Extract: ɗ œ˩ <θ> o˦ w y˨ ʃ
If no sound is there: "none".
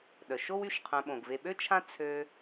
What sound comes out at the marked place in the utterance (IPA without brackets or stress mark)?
ʃ